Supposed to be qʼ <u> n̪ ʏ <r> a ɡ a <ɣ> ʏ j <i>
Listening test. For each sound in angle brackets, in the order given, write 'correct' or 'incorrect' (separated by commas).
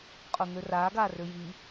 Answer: incorrect, correct, incorrect, correct